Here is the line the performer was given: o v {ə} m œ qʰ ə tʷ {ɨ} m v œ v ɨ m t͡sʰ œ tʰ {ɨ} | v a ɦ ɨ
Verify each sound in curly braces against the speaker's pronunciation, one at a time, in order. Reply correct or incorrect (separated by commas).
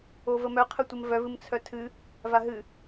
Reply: correct, incorrect, correct